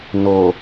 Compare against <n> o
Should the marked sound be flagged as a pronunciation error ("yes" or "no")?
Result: no